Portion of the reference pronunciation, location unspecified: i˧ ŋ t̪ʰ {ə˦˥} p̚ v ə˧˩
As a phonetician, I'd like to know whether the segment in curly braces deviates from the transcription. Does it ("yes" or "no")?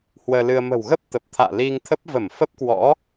no